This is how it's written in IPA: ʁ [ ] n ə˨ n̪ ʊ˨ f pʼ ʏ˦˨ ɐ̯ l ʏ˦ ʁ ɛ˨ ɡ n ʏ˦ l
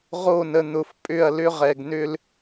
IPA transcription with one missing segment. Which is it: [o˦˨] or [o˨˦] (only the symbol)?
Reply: o˦˨